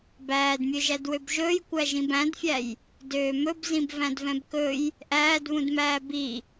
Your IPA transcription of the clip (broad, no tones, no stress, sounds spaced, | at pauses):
b æː d mʲ ø ʒ æ d w ø b ʒ ɵː j kʷ æ ʒ ĩ b æ̃ d fʲ æ j | d øː m ɵ b z ĩ b v æ̃ d v ɛ̃ b k ɵ j | ʔ æː d β ũ d m æː b i